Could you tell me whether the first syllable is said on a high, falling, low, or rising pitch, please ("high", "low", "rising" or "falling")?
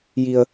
low